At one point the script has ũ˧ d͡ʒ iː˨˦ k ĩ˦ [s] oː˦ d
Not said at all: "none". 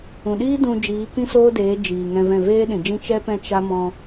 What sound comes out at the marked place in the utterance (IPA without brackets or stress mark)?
s